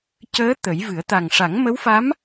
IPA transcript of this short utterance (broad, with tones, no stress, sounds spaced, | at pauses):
c əː˧˥ t̪ ə˨˩˦ j v ɨ˨˩˦ ə̯ t̪ a˨˩ ŋ ʂ a˨˩˦ ŋ m ə˧˥ w f a˧˥ m